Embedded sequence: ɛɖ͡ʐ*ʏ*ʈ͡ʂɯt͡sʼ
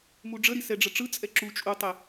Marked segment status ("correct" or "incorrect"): incorrect